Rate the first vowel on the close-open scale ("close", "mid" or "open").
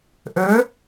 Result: mid